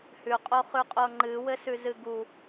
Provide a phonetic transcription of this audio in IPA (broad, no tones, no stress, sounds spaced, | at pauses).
h ʉ qʼ o χ ʉ qʼ o ŋ͡ǃ ɨ w ɘ s ʉ z ɨ ɡ u